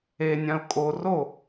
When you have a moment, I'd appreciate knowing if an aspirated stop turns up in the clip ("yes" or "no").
no